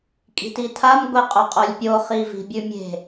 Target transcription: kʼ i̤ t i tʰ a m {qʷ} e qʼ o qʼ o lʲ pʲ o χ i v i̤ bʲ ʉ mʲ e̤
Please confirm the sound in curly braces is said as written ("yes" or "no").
no